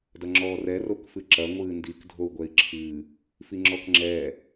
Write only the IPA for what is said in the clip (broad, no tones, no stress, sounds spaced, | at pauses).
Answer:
d ɐ ŋ͡ǁ ɔː r ɛ r o k f ɨ ǁ ɐ ŋʷ ɨː n d i k dʱ o u̯ ɡʷ ɛ i̯ ǁʰ ɨː | f i ŋ͡ǁ ɔ k ŋ͡ǁ ɛː